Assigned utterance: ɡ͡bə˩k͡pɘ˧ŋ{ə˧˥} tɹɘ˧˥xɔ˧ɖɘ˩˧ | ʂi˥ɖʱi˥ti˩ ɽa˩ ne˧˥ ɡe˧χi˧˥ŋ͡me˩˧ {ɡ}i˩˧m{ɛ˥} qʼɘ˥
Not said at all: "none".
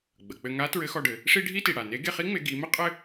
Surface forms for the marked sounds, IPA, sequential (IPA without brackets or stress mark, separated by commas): a˧˥, ɡ, ɘ˥